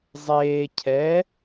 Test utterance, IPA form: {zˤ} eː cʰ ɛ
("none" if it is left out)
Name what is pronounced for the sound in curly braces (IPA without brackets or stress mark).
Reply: zˤ